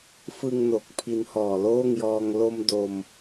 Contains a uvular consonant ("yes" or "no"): no